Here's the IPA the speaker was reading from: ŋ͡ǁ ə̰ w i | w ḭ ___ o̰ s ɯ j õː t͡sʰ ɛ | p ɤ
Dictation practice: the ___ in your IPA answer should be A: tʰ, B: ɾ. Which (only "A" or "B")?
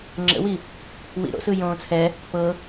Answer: B